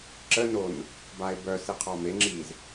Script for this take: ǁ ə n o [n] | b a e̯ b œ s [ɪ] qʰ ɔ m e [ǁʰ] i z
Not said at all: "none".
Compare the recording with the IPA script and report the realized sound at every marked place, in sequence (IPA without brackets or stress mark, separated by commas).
n, i, ŋ͡ǁ